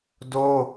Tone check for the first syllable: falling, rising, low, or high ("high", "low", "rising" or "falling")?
high